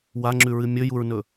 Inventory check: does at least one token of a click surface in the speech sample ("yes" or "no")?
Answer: yes